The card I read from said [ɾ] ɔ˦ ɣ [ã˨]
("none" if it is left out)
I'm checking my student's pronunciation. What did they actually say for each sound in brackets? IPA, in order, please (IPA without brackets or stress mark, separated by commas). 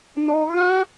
n, ã˦